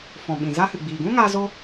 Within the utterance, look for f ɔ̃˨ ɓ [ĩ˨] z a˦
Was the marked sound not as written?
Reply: no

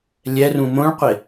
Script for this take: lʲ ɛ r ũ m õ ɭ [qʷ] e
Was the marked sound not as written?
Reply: no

